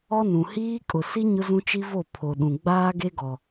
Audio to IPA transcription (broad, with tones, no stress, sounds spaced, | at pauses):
ɔ˦ n ũ˨ h iː˦ kʼ ʊ˨ s i˦ ɲ ʊ˦ z ũ˦ t͡ʃ i˦ v o˦˨ pʰ o˨ ɗ ũ˨ ɡ͡b aː˦ ɡ e˦ ɡ ɔ˨